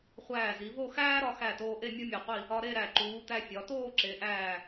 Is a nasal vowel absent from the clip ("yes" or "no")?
yes